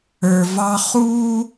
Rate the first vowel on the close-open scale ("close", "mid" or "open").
mid